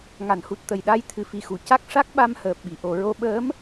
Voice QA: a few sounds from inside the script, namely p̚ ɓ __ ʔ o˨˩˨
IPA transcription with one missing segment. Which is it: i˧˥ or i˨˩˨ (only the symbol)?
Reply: i˨˩˨